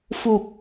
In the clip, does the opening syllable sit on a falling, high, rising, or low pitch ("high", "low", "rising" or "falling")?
low